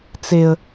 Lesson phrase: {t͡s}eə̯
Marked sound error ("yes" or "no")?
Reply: no